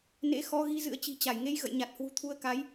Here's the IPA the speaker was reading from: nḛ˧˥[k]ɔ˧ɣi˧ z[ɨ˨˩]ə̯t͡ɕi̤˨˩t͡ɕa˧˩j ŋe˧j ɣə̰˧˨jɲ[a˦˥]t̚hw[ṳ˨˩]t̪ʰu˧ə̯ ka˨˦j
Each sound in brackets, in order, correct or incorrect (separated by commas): incorrect, incorrect, incorrect, correct